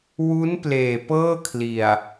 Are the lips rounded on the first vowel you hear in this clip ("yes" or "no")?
yes